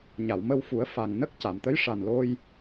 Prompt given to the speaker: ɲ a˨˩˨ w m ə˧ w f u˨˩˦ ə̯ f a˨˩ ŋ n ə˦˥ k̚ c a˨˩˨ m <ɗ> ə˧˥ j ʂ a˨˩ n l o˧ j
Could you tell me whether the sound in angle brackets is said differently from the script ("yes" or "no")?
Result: yes